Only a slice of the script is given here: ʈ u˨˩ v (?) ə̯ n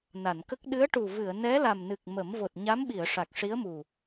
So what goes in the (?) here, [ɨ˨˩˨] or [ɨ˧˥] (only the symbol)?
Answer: ɨ˨˩˨